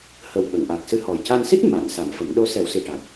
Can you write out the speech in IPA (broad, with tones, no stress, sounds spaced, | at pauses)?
h ə˨˩ w ɓ ə˨˩˨ ŋ ʔ a˨˩ k̚ s ɨ˧ h ɔ˨˩ j c a˧ n s i˦˥ t̚ m a˨˩˨ n s a˨˩˦ m f ə˨˩˦ m ɗ o˧˥ s ɛ˨˩˦ w s i˨˩ ʈ a˨˩ k̚